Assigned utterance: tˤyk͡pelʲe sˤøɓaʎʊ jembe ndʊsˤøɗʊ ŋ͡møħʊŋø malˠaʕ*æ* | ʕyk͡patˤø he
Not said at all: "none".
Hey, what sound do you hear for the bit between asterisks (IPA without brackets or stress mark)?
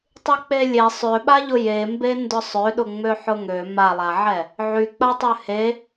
ɛ